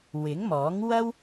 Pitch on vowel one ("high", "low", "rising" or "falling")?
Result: rising